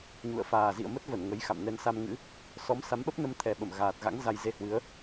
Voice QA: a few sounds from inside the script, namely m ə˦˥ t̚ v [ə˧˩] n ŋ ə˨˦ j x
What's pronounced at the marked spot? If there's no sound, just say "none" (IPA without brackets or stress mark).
ə˧˩